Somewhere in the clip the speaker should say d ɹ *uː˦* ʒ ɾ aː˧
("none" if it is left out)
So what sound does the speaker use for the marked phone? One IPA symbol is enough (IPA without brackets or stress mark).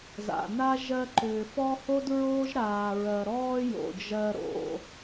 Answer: oː˦